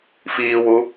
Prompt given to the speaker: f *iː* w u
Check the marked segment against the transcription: correct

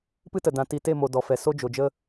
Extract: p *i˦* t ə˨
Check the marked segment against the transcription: incorrect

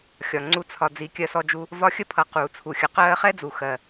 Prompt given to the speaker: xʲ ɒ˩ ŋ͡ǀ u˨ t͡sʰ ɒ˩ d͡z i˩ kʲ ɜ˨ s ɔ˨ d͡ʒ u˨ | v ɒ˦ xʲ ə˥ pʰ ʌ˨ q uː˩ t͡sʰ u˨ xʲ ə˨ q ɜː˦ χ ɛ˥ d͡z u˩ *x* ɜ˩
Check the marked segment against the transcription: correct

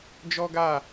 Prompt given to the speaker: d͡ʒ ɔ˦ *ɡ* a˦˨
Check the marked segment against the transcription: correct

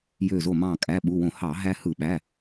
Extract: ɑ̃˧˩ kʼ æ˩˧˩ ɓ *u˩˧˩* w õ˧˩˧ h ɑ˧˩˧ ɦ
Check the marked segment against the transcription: correct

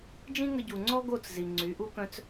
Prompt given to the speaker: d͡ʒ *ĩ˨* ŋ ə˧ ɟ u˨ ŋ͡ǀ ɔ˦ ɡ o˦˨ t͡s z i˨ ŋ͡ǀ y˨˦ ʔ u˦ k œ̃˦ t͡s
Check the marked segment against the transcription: incorrect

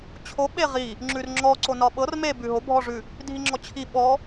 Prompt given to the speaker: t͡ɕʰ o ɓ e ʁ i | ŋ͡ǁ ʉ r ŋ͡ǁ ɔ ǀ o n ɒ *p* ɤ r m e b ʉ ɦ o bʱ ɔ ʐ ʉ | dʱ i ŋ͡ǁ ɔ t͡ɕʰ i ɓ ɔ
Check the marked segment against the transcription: incorrect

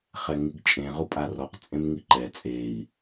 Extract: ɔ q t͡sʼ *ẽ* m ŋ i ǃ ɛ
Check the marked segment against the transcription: correct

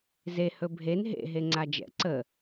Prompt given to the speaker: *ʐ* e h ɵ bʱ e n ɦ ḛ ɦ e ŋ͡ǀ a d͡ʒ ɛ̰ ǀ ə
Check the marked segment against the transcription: incorrect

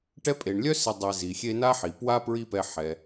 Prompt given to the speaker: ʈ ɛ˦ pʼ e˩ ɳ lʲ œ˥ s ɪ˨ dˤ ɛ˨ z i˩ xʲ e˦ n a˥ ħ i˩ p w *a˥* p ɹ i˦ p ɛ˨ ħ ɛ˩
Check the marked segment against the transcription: correct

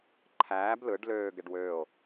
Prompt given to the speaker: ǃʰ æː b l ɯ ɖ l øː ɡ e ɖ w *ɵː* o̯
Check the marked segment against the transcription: incorrect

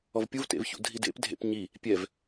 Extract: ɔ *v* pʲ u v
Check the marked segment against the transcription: correct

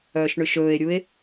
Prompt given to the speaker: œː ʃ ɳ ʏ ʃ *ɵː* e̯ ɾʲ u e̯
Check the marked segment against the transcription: correct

